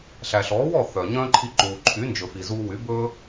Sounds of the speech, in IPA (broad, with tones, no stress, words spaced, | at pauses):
ɬæ˩ɬɔː˩˥wɔ˥˩ θœ˩ɲœ̃ː˥ǃʰi˧ ǃuː˩ǃʰy˩˥ nd͡ʒɵ˩fi˩ zuː˧wy˩˥ bɵː˥